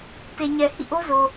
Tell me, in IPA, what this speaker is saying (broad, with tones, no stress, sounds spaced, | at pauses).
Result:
t e˨ ɲ ɛ˨ h ḭ˦˨ ʔ o˦ z o˨